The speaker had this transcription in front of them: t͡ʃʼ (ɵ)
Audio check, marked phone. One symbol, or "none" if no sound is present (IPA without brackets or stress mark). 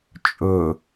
ɵ